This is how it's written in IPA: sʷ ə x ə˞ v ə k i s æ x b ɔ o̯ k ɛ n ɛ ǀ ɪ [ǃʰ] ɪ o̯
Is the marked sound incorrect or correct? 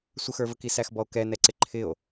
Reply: correct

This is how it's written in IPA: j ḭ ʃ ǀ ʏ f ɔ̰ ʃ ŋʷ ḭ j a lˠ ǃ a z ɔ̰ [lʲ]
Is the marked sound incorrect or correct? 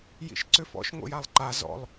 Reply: incorrect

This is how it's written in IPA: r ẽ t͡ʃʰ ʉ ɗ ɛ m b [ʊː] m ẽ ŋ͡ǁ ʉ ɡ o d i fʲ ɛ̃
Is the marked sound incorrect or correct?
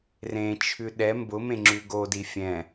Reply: incorrect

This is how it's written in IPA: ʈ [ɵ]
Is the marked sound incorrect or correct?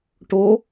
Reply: incorrect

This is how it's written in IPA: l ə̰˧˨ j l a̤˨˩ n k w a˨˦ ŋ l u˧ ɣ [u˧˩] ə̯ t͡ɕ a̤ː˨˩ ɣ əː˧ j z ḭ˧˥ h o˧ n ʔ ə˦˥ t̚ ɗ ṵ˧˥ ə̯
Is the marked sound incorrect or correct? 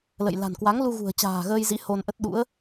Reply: incorrect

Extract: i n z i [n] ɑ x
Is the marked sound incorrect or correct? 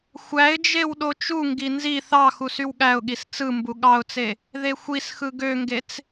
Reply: incorrect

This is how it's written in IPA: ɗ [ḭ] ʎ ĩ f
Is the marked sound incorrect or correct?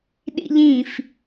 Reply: correct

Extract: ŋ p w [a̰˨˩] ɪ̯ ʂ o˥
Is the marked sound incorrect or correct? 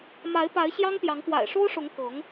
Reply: correct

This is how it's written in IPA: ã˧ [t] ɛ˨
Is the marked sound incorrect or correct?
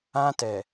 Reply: correct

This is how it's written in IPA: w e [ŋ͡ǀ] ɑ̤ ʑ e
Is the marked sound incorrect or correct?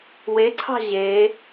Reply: incorrect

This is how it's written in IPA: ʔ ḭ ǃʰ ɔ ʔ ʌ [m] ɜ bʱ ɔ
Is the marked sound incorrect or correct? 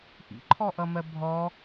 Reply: correct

